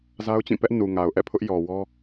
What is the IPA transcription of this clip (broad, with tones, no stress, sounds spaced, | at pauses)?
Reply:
z a˦ ʊ̯ t͡ɕ ĩ˦˨ p ɛ˦ ʔ n u˨ ŋ a˨ ʊ̯ ʔ ɛ̰˦˨ pʰ ʊ˦ ʔ j ɔ˨ w ɔ˦